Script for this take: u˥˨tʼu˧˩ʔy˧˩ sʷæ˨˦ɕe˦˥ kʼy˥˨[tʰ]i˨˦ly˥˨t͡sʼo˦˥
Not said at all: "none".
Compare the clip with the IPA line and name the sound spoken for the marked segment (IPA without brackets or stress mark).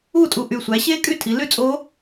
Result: tʰ